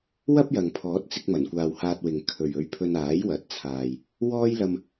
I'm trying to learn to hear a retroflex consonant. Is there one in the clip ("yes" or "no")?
no